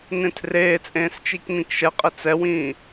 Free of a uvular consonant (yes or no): no